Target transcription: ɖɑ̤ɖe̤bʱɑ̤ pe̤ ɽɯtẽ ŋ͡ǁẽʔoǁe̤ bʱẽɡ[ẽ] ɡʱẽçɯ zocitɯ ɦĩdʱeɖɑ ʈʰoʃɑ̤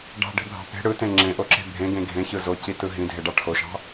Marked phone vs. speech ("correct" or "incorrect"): correct